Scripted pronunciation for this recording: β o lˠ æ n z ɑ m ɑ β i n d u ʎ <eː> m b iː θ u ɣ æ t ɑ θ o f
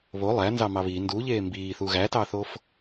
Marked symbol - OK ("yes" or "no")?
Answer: yes